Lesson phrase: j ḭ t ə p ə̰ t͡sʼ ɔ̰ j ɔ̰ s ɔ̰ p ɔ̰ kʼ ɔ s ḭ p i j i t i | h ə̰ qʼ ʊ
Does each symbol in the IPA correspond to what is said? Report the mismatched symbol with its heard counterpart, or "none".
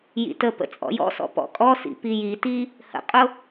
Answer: none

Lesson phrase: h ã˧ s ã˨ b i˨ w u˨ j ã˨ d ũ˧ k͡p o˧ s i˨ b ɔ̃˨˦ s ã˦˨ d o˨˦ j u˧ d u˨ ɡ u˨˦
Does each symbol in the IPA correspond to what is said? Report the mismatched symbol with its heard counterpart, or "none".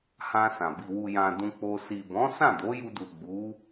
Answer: ɡ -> ɡ͡b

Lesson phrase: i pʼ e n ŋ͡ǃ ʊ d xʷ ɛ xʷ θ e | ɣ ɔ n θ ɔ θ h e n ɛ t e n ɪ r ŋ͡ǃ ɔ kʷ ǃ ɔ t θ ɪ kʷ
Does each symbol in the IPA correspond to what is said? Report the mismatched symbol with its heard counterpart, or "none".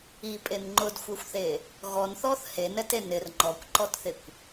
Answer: none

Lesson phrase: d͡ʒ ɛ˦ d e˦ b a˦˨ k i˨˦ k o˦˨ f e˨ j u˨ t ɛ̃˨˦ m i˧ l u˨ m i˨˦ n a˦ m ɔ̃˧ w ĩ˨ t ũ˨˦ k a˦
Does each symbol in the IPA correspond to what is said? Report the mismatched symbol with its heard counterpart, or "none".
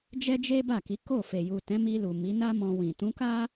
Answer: d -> d͡ʒ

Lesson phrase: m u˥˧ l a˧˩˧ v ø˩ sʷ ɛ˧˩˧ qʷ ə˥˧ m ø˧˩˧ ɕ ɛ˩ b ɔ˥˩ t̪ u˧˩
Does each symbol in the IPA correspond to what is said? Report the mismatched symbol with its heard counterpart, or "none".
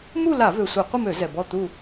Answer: ɕ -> z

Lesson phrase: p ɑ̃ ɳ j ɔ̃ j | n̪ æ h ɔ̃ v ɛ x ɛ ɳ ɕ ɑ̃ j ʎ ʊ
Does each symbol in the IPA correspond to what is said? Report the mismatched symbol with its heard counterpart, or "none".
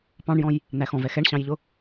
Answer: h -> x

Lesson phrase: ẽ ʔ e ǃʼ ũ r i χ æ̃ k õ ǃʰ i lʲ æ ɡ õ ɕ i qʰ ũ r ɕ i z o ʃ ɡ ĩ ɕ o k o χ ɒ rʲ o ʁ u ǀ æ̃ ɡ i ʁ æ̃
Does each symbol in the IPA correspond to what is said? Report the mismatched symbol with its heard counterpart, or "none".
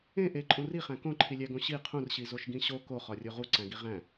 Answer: none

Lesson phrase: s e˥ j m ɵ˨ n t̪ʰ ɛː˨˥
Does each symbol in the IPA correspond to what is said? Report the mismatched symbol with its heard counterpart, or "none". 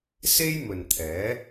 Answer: none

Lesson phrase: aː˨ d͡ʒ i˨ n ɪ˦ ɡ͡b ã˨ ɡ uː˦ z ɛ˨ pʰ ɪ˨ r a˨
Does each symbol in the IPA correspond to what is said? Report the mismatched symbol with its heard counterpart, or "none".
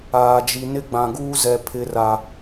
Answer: none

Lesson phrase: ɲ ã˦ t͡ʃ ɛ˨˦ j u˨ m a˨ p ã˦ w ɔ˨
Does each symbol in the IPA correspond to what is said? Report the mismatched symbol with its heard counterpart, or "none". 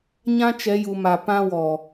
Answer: none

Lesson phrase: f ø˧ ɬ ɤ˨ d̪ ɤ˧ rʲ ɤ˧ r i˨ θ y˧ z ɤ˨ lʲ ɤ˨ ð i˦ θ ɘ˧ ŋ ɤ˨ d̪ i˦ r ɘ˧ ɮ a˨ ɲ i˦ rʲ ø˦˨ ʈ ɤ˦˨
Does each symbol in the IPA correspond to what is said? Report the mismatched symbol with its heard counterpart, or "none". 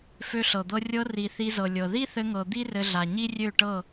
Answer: y˧ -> i˧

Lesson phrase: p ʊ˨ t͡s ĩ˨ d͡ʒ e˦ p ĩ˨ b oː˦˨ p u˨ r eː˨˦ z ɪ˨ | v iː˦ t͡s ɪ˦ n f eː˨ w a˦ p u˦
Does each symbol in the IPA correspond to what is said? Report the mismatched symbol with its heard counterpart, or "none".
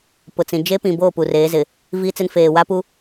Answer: none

